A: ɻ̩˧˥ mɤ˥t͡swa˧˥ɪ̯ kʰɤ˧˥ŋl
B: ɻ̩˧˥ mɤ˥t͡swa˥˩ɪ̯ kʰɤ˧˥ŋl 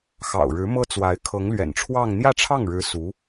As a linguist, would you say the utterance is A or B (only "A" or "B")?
A